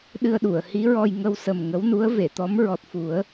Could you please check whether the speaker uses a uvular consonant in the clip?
no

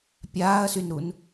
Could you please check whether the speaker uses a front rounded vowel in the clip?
yes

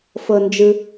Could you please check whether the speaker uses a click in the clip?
no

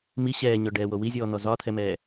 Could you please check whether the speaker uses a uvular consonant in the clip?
no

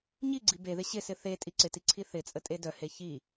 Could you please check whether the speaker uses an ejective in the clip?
yes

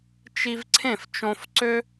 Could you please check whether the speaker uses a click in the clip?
yes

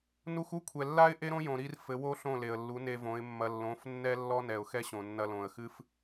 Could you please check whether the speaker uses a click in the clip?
no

